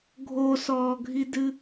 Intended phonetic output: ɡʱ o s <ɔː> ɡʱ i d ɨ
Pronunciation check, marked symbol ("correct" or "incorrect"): correct